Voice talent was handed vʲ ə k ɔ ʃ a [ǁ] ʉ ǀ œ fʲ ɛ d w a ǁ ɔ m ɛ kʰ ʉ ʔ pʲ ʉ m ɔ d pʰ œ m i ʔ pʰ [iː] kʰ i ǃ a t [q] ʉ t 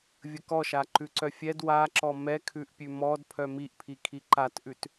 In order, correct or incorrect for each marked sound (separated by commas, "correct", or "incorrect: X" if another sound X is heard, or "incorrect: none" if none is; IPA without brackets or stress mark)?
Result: incorrect: ǃ, incorrect: i, incorrect: ʔ